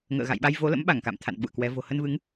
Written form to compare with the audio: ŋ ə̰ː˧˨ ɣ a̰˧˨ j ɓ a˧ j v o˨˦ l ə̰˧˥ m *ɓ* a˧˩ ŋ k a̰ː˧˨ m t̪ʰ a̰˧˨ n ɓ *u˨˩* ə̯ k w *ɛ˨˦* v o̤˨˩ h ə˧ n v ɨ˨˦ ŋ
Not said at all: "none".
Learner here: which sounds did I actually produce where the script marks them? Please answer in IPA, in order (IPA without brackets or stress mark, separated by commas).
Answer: ɓ, ṵ˧˨, ɛ˨˦